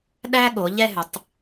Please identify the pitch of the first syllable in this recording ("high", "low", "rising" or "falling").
high